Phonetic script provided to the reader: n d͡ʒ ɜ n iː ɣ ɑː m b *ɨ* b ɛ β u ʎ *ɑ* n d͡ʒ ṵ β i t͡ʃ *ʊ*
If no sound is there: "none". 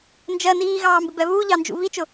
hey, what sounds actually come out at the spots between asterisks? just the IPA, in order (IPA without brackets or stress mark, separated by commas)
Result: ɪ, ɑ, ʊ